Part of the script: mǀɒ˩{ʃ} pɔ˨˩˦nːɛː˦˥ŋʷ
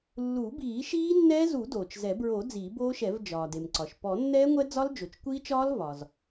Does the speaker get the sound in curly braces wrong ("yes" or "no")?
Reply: no